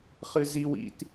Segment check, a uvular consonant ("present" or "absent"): present